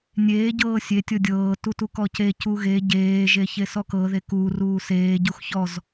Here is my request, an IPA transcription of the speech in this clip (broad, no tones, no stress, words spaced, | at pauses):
nʲeː ɟɤːsʲe tʲɤdʲɤː tutukɔce cuɣe ɟeː ʒeçesɔkɤ ðekuː ruːseː ɟuxçɔz